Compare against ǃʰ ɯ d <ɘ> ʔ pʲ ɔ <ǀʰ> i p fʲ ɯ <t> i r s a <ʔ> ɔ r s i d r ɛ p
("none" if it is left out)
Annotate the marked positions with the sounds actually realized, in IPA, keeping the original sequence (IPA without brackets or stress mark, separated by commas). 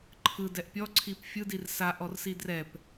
ɛ, ǀʰ, d, ʔ